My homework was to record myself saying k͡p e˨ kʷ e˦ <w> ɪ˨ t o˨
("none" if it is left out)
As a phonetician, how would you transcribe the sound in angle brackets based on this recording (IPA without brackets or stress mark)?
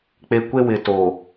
w